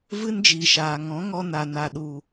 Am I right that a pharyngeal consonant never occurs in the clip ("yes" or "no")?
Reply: yes